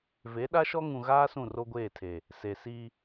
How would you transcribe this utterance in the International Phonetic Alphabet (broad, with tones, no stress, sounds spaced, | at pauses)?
v e˨˦ ɗ a˦ ʃ ɔ˦ ŋ ũ˨ ɣ aː˦ s ũ˦˨ r o˦ ɡʷ eː˦˨ tʰ e˨ | s e˨ s i˦